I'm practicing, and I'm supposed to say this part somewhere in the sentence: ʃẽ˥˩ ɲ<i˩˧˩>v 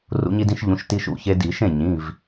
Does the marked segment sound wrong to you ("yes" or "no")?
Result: yes